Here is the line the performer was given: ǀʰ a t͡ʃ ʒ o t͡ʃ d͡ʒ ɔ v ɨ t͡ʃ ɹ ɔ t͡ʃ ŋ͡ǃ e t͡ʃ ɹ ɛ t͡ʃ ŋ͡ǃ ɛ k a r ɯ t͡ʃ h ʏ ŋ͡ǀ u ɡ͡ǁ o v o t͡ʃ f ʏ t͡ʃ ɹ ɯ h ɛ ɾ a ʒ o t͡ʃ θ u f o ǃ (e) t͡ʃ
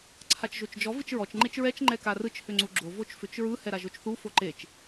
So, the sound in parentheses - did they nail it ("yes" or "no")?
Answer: yes